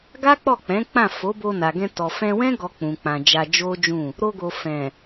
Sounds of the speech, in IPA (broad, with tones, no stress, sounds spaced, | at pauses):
ɡ a˦ k͡p ɔ˦˨ k͡p ɛ̃˨˦ k͡p ã˦˨ f o˨˦ b o˧ n a˨ ɡ ɛ̃˧ t ɔ˨ f ɛ̃˧ w ɛ̃˦ ɡ ɔ˧ k͡p ũ˨ k͡p ã˨ d͡ʒ a˧ d͡ʒ o˦ d͡ʒ ũ˦˨ | ɾ o˧ ɡ o˨ f ɛ̃˨